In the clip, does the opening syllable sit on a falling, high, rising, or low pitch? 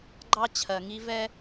high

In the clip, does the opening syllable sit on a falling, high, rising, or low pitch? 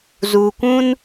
low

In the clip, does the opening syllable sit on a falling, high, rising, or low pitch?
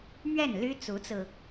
falling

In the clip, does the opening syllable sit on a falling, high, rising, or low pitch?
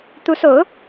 rising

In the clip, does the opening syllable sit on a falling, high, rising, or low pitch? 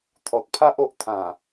low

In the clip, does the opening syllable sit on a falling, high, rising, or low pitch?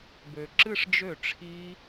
low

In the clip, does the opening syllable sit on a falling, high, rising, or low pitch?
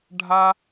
high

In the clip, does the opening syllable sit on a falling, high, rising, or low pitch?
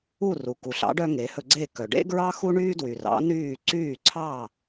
falling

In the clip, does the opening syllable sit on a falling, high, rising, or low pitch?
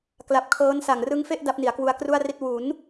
low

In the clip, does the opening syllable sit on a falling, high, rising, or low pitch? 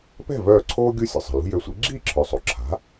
falling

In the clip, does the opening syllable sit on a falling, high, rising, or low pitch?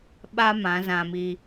high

